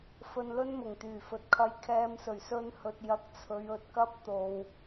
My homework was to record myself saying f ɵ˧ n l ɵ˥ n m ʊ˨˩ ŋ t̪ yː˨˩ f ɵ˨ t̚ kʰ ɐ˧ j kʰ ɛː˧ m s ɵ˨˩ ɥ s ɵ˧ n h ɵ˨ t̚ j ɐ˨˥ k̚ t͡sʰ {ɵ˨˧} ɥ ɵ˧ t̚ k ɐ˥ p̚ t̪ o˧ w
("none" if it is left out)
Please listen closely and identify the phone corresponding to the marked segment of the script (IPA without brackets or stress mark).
ɵ˨˧